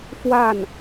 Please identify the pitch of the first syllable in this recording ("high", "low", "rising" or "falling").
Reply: falling